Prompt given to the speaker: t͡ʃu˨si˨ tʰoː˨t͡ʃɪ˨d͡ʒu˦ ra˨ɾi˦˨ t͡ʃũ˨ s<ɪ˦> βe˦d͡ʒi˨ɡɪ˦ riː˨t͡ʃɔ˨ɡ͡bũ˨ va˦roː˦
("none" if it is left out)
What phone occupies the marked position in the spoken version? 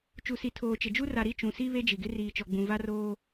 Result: i˦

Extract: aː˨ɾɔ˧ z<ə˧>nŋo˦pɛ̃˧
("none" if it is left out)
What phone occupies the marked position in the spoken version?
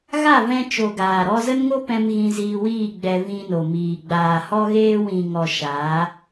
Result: ə˦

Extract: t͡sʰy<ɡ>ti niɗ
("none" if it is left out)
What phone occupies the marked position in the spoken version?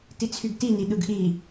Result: ɡ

